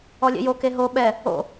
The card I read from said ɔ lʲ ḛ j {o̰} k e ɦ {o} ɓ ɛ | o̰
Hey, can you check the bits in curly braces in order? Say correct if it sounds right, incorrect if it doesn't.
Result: incorrect, correct

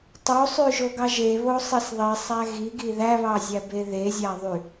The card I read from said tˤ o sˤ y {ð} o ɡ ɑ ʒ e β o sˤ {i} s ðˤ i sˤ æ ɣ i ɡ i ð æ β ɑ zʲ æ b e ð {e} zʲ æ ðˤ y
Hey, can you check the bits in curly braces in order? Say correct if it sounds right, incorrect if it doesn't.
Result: incorrect, correct, correct

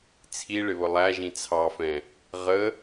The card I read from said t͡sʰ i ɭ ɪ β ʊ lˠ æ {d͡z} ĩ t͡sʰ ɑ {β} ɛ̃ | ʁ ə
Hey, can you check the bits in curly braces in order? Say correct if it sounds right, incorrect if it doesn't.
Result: incorrect, incorrect

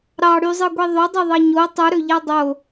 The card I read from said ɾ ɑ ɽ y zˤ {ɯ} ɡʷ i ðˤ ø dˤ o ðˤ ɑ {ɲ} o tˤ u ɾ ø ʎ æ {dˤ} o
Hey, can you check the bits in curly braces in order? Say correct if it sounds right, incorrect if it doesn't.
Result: correct, correct, correct

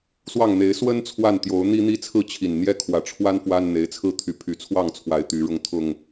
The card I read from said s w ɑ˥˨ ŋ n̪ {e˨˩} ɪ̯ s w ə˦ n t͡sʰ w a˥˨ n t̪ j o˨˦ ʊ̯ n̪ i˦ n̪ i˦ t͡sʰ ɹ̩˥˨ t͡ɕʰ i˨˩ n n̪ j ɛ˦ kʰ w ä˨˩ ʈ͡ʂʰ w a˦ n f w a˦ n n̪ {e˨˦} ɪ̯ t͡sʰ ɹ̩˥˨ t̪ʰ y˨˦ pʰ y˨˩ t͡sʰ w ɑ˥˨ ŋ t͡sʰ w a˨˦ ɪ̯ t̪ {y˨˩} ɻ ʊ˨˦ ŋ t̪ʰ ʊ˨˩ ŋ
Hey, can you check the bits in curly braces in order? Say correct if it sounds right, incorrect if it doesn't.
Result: incorrect, correct, incorrect

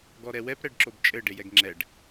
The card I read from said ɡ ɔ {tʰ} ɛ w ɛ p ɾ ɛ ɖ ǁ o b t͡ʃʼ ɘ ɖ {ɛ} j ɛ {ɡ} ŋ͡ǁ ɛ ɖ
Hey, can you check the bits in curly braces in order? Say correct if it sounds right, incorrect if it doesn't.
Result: incorrect, incorrect, correct

